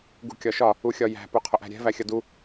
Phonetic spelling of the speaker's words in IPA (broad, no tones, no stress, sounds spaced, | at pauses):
ɡ ṳ kʲ ɒ ʃ ɒ | u xʲ ɒ j æ̤ p u qʰ ʊ ʔ æ̤ ɾʲ ɛ̤ v æ xʲ ʌ d u